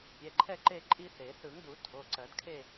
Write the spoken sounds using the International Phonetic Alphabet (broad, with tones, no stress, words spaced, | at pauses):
pʲɛ˩˧˩ǃʰɛ˥˧ǃe˥˧ ǃʼi˥θe˨˩˦ θɯ˨˩˦ŋdu˨˩˦ tʰo˩˧˩ǀɜ˨˩˦dkʰe˥˧